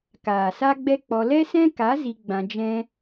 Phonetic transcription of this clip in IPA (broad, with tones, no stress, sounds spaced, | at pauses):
k aː˨ s a˦ ɡ͡b ɛ˦ k͡p ɔ˧ l ɛ˦ s ɛ̃˦ k a˨˦ z i˧ ɡ͡b ã˧ d͡ʒ ɛ̃˦